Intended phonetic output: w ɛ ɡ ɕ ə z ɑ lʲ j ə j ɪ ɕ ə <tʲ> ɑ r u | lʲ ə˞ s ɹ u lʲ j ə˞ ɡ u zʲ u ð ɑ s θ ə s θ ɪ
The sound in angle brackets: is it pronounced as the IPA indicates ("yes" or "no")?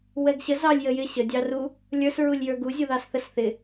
no